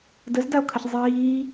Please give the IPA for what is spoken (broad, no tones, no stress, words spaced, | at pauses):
dəzdao̯kʰəç zˤiː